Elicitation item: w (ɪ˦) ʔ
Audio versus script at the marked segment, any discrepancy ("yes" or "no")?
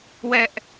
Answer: yes